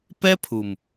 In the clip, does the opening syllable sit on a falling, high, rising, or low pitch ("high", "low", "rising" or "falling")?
high